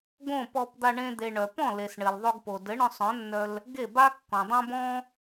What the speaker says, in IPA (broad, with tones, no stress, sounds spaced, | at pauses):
ɡ õ˥˩ p ɔ˧ p d̪ a˧ ɳ ẽ˧ d̪ e˩ ɳ œ˩ p ɔ̃˥˩ l e˩ s ɳ ɘ˩ l ðˤ o˧ ɡ p o˩ d ɘ˩˥ ɳ œ̃˧ sˤ œ̃˩˥ nː œ˧ l | ɡ e˥˩ b a˥ kː ɔ̃˩ dˤ œ̃˥ b ɔ̃˥